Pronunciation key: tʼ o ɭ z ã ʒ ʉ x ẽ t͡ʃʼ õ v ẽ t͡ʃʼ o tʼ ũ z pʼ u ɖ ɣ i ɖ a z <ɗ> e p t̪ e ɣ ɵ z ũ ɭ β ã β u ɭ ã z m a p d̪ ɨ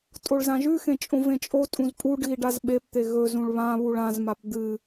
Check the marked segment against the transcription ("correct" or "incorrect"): incorrect